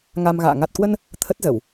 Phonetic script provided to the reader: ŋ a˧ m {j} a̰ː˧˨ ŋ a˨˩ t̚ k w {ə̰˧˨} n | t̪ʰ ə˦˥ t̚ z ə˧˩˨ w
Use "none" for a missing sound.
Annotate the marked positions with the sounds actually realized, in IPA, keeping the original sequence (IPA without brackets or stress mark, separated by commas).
ɣ, ə˧